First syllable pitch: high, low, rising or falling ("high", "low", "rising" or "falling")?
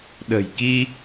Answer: low